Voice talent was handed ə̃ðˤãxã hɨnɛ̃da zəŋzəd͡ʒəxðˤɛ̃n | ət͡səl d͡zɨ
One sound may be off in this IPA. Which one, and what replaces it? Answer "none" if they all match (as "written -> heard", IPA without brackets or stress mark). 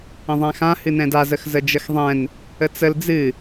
ŋ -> x